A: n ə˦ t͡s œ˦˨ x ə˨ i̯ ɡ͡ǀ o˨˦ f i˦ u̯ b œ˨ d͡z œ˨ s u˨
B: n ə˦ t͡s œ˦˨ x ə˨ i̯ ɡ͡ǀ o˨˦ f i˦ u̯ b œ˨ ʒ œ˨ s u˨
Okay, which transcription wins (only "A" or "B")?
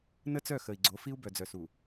A